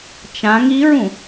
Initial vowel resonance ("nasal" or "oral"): nasal